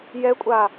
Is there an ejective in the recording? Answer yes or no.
yes